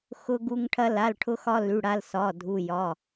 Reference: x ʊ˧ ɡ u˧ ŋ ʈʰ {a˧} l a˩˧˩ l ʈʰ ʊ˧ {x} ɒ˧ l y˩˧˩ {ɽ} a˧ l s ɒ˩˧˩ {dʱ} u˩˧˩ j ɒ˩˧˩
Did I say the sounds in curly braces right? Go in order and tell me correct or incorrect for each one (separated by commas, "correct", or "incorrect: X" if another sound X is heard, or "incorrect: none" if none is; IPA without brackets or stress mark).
incorrect: ɐ˧, correct, correct, correct